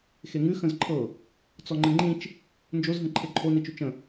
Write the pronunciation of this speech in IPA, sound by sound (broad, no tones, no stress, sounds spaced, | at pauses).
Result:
x e ŋ ʉ x ə̃ z ǃʰ ɤ | t͡s ɔ ŋ͡ǃ ɘ ŋ͡ǃ ĩ t͡ʃ | n d͡ʒ o z ɦ ə̃ ǃʰ e ǃʰ o n i t͡ʃ ʉ t͡ʃ ə̃